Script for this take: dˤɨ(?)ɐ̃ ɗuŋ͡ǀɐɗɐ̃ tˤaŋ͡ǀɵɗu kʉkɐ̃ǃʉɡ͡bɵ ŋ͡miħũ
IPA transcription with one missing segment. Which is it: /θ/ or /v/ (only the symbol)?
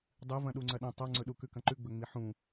v